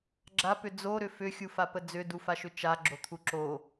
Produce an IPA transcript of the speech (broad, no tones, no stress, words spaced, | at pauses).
ɡ͡ǁapʏ d͡zoɾʏ fʏxʲufapə d͡zʏdufaʃʏ t͡ʃaɡ͡ǁot̪ʰu ǁo